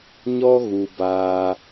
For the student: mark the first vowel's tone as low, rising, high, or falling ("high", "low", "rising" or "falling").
high